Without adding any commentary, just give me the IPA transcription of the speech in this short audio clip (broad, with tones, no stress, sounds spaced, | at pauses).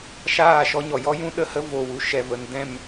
ʃ aː˦˨ ʃ ɔ˦ ɲ ɔ˨ j ɔ˦ j ũ˦ ɗ ə˧ h ə˦ v o˨ w u˨ ʃ ɛ˨ v ə˨ n d ɛ̃˦˨ m